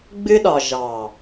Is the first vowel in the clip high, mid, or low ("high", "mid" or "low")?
high